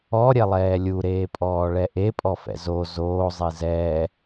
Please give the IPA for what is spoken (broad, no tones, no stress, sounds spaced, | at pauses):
ɔ ɾʲ ɛ lˠ ɛː lʲ u ɾ eː pʼ ɔː ɭ ɛ ʔ e pʼ ɔ f ɛ̰ z o z oː zˤ i z ɛː